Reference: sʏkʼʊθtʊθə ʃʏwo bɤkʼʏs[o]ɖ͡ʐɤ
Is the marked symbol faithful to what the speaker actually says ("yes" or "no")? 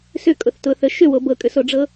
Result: yes